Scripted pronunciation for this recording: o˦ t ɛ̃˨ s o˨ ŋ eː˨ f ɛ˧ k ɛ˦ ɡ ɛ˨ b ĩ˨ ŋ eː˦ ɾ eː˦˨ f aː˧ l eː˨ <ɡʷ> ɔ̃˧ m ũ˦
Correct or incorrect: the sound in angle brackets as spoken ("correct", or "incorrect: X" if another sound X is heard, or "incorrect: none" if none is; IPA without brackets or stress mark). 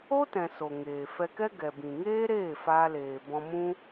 incorrect: b